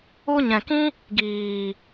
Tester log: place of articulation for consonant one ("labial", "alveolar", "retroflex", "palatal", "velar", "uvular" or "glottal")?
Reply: palatal